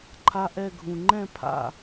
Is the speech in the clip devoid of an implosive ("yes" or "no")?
yes